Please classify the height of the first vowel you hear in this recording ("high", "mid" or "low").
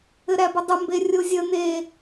mid